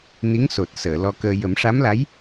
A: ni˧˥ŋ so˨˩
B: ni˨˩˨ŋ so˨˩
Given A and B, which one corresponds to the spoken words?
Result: A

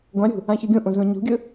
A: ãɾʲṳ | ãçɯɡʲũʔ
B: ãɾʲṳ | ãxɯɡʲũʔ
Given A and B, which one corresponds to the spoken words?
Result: A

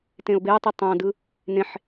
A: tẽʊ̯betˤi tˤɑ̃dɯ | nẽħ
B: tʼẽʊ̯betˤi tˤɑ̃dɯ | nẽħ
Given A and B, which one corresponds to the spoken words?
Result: A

